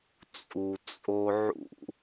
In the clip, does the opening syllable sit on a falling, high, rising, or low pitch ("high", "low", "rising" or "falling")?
low